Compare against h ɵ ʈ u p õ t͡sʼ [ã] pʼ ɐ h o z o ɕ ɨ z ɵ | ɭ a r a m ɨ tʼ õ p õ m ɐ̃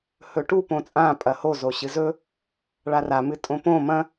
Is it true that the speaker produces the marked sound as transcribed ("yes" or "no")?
yes